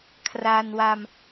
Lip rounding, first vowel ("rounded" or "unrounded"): unrounded